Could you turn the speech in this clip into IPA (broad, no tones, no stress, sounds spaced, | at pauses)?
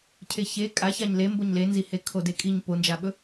cʰ e ç e kʼ a ç a ɲ l e m b o ɲ l e n z i h e kʰ o d e kʼ i ɲ p o n d͡ʒ a ɓ ɵ